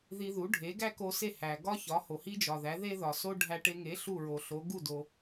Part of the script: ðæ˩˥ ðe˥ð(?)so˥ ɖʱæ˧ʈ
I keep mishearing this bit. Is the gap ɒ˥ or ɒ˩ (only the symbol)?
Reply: ɒ˩